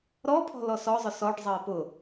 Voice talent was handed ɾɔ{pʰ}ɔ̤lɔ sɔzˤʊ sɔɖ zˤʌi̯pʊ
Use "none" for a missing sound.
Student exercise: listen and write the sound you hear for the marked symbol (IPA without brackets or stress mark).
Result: pʰ